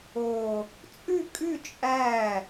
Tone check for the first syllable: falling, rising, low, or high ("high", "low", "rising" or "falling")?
low